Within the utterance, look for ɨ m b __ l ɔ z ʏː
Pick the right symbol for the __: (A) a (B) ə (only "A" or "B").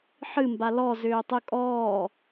A